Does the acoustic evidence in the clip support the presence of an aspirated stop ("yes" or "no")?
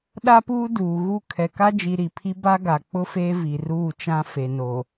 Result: yes